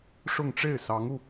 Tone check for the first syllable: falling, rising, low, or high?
falling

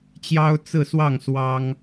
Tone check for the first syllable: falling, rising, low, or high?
high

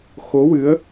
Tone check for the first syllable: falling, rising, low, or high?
rising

